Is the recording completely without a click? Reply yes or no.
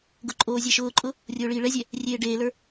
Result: no